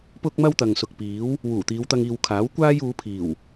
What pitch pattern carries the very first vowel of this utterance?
high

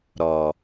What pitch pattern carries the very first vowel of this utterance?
low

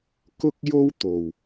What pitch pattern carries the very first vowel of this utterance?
high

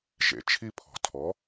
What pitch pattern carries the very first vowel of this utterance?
low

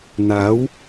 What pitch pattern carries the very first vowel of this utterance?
rising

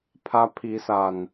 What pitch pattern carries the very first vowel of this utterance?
high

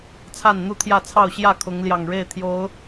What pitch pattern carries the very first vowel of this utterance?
falling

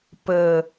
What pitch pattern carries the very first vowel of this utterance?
low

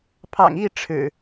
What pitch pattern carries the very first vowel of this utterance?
low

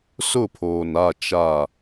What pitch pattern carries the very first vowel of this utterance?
falling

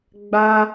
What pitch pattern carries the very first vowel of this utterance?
high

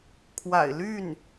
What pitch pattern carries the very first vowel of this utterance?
low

